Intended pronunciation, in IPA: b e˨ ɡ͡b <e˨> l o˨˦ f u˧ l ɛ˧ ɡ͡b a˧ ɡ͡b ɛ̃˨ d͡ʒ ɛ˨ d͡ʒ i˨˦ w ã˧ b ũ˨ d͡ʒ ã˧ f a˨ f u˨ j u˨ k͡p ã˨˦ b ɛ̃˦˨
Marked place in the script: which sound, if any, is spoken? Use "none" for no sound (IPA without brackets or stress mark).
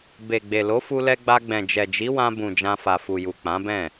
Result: e˨